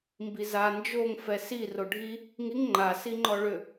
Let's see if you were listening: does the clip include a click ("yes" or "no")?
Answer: yes